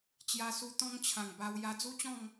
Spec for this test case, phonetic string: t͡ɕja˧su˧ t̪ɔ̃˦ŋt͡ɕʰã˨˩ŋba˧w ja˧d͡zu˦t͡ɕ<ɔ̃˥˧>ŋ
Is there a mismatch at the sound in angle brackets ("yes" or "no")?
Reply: no